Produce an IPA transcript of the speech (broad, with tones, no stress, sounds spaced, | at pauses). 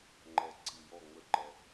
ŋ͡ǃ ɛ˨ ǀʰ i˨ j ɔ˦˨ ŋ͡m ə˦ ǃ ɛ˦